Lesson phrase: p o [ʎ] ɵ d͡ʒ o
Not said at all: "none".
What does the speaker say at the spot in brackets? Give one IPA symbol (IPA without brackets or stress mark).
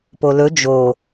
l